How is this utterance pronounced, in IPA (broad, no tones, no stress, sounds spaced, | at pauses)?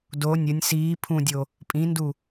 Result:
d o nʲ ə nʲ s iː pʰ ũ dʲ o | pʼ ĩ n d u